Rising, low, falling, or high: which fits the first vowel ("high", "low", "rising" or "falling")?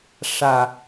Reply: low